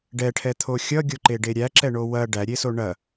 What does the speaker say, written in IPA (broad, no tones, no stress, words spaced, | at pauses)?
ɖɛʈʰɛt̪ʰo xʲʌɡʲoǃeɖe ɾʲæǁɛɳo wɐ ɖæɾʲeso ɳɐ